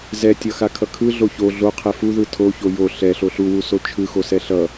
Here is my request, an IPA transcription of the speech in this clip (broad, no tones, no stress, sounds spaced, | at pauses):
z ɛ tʲ ʌ x a kʰ ʌ kʰ ɯ ɮ o ç o ɮ o qʰ ɛ f u ð ɯ tʰ o ç o j o ɬ ɛ ɬ o ɬ u w u s o t͡ʃʰ ɯ x o s ɛ ɬ ʌ